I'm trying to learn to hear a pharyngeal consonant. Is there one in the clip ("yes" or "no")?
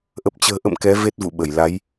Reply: no